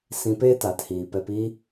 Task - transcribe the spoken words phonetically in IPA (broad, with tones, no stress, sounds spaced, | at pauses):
s ĩ˧ p eː˦ t aː˨ t h iː˨ p ɛ˧ p i˦